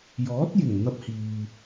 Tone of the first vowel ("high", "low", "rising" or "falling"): rising